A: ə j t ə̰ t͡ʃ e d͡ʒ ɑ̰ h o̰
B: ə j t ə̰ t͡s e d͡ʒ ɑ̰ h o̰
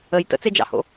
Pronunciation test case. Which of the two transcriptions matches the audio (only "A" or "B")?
B